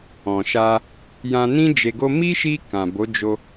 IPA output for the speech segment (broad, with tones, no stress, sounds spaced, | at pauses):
ɔ̃˨ ʃ a˧ | j ã˧ n ĩ˦ d͡ʒ e˧ ɡ o˦ m i˦ ʃ i˧ k ã˨ b o˨˦ d͡ʒ o˧